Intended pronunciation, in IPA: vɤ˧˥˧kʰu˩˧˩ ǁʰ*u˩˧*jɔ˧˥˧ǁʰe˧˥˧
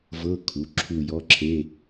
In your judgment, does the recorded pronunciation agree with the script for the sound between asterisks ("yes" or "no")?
no